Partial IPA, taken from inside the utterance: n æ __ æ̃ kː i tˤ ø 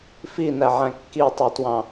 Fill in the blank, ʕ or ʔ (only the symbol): ʕ